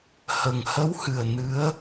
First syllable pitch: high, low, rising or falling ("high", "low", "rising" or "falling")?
low